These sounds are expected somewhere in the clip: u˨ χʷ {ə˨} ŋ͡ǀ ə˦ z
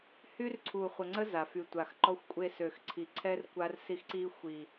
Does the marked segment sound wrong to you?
no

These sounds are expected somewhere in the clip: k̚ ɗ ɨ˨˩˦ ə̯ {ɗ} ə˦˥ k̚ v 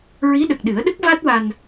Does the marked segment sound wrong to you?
no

